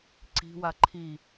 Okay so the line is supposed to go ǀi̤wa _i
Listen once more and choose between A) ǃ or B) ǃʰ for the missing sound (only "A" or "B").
B